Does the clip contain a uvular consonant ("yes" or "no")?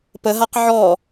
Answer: yes